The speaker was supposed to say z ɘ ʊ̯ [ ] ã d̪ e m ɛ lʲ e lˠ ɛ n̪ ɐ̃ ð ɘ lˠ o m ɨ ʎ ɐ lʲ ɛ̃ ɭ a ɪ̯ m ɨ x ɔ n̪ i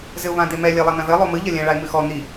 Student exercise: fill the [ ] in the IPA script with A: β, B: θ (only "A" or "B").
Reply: A